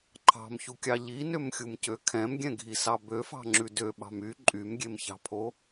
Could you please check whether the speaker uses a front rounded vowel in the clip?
yes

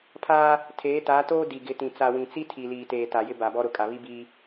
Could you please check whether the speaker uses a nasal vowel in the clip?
yes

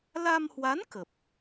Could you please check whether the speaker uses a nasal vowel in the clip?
no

